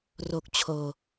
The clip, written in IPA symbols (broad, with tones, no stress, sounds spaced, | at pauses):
r o˨˩ k̚ t͡ɕʰ oː˨˩